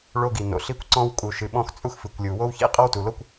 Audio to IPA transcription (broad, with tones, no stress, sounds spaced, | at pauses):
ɭ o˥ ɡ i˩ n o̰˩ ɬ i˥ kʷ ǀ ɔ̃˥ w kʼ u˩ ʃ ɨ˩ ɓ ɔ̃˥ x t͡sʼ u˥ x f ɨ˩ kʷ lʲ u˩ w o˥ w ç ḭ˥ qʼ ɔ˥ w t u˩ l o˥ kʷ